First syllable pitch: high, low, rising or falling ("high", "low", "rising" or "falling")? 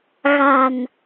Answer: low